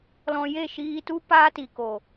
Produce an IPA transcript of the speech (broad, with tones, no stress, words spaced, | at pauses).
lɔ̃˧je˦˨ʃiː˧tu˦ paː˦ti˨ko˨